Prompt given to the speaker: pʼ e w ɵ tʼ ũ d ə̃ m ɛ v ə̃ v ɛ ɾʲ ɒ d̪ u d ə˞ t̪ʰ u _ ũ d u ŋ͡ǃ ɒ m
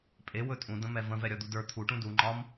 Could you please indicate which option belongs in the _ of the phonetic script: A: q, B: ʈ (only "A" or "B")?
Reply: B